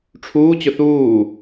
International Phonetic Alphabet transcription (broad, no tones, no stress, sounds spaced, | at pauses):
ʈ͡ʂʰ uː t͡ɕ ʊ θ uː